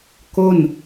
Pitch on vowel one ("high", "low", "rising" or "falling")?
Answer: falling